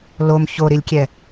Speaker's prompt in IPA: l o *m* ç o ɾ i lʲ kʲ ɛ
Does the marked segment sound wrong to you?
no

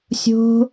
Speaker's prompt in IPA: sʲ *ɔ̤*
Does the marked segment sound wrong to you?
yes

